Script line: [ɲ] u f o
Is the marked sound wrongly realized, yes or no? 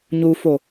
no